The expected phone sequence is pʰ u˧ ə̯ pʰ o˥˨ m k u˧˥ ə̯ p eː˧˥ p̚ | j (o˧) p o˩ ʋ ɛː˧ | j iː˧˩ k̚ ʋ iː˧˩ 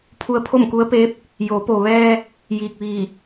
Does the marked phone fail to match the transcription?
yes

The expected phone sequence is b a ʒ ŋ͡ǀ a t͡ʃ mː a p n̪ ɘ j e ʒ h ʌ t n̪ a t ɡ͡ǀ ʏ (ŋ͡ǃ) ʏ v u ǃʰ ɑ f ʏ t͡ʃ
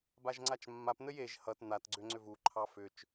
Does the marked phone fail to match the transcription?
yes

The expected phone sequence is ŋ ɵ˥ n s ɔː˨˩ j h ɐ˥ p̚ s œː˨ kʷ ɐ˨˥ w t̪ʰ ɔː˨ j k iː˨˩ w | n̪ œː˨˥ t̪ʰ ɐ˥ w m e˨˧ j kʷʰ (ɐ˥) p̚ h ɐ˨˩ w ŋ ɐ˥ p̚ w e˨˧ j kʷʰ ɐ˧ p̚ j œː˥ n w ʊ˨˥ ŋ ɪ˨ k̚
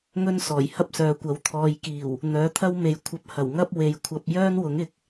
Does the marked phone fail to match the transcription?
yes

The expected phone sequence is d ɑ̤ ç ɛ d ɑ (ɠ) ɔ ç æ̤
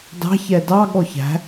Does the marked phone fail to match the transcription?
no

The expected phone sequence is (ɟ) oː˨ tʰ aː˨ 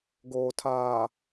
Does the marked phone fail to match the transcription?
yes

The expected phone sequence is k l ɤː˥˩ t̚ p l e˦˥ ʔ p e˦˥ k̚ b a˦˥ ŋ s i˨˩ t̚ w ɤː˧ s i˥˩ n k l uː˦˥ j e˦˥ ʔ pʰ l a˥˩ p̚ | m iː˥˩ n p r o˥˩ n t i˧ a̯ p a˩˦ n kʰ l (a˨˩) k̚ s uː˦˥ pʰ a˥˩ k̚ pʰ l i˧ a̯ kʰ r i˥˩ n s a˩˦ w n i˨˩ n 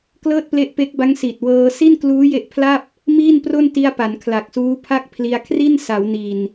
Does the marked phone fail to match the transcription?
no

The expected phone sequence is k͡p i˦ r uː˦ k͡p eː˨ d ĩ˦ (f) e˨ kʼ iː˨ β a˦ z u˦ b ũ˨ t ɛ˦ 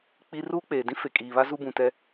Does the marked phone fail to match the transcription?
no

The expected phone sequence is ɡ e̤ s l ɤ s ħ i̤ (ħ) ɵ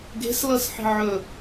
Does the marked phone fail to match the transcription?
yes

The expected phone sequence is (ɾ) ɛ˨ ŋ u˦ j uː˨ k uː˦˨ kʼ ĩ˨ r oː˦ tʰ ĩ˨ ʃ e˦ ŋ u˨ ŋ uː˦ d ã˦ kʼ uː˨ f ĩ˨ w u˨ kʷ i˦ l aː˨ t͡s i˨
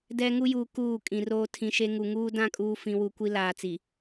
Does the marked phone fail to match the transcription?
yes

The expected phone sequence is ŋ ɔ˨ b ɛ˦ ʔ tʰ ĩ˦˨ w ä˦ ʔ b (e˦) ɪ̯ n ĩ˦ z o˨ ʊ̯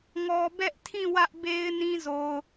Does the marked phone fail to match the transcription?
no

